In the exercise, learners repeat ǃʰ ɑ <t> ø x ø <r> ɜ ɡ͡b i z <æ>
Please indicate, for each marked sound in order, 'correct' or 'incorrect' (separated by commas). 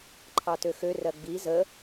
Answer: correct, correct, incorrect